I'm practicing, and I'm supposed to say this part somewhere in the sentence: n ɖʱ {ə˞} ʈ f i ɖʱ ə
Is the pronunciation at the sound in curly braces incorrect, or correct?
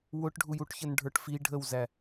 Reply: correct